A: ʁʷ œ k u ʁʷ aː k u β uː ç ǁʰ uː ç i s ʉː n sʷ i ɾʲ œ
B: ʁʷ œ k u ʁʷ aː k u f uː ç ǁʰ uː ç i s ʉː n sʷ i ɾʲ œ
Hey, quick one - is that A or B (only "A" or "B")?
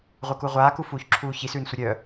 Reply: B